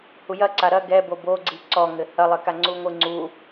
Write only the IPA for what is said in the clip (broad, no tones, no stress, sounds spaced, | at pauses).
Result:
h u j ɐ ǀ a ɾ ɐ ɡ ɛ b o b o ɡ͡ǀ i ǀ ɔ ŋ ɘ h ɐ lˠ ɘ k a ŋ͡ǀ u ŋʷ ɨ ŋ͡ǀ u